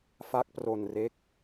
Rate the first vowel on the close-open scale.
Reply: open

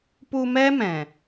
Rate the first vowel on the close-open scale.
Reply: close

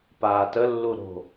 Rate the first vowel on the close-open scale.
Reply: open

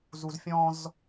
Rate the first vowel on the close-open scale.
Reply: close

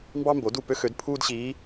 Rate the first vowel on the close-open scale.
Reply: open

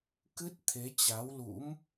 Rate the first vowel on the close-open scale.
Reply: close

